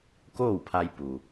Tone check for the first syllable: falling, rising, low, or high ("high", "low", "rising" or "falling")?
falling